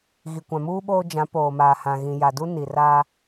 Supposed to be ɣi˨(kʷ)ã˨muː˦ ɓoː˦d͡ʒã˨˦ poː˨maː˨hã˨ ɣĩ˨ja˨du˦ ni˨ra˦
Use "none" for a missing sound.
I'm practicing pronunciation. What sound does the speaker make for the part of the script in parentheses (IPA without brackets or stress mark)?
kʷ